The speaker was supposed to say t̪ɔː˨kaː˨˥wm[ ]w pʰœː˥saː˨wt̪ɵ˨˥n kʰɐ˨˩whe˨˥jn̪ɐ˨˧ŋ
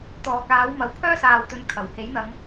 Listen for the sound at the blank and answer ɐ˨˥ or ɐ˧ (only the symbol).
ɐ˨˥